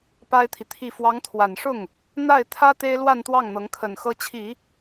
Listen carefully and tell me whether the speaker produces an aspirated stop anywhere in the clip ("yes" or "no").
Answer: yes